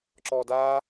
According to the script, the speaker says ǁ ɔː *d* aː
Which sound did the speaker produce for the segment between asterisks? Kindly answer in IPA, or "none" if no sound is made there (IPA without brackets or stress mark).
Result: d